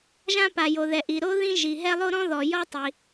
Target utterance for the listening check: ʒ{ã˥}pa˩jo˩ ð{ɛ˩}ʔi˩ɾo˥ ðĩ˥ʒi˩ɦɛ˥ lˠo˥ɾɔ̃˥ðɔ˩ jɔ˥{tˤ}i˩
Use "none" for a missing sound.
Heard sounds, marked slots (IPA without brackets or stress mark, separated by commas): ã˥, ɛ˩, tˤ